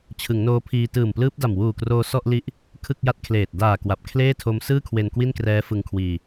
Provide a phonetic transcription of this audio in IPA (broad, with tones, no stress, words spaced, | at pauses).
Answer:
t͡ɕʰɯ˩˦ŋnoː˦˥pʰiː˧ tɯː˨˩mplɯː˦˥p̚da˨˩m wuː˨˩kroː˧ sɔ˥˩ʔli˦˥ʔ | kʰɯ˥˩k̚ja˥˩t̚kʰleː˨˩t̚ daː˨˩ kwa˨˩p̚ kʰleː˥˩tʰo˦˥m sɯː˥˩kʰwe˧n kwi˥˩nkrɛː˦˥ fɯ˧ŋkʰwiː˧